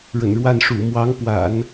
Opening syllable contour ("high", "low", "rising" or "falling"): low